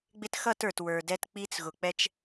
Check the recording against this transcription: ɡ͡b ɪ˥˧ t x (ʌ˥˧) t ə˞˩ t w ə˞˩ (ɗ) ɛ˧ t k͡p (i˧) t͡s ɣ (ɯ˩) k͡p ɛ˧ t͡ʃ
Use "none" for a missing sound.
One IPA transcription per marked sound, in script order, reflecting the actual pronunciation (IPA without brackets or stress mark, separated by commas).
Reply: ʌ˥˧, d, i˧, ʊ˩